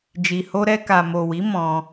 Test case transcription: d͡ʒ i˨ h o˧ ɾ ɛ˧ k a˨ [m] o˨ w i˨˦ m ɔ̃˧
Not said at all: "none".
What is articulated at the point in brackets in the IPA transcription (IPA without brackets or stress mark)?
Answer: m